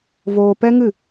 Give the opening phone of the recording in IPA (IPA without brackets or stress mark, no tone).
v